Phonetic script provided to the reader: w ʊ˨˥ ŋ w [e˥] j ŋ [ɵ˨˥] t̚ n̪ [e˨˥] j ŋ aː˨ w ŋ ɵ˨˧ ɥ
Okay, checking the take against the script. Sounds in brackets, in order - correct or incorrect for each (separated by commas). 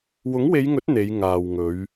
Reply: incorrect, correct, incorrect